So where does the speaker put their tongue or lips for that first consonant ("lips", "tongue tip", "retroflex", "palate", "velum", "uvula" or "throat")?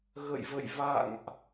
velum